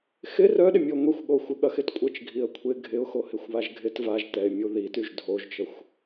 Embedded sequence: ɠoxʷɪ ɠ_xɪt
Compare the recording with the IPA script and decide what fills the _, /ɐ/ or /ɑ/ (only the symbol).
ɐ